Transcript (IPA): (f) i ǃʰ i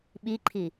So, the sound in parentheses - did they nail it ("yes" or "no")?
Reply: no